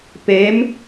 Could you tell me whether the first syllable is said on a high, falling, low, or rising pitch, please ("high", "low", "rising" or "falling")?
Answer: rising